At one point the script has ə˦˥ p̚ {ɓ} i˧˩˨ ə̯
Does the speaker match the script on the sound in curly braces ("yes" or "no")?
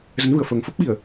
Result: yes